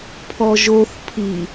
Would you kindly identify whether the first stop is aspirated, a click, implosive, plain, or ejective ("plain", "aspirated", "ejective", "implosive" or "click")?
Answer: aspirated